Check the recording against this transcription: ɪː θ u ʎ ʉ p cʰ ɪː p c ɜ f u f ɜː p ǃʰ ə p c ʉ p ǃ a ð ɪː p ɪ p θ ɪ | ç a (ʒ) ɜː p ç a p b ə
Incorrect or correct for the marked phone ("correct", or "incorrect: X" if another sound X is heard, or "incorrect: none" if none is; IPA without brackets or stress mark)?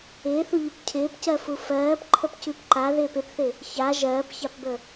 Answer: correct